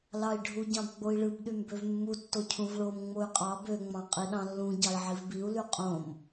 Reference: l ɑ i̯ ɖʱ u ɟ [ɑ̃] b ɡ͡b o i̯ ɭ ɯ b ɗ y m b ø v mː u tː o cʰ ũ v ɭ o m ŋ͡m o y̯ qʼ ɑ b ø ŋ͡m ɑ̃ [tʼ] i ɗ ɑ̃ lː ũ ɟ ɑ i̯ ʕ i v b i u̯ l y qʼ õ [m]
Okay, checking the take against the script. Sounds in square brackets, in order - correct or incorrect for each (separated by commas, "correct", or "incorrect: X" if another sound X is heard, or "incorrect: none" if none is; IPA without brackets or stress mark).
correct, incorrect: qʼ, correct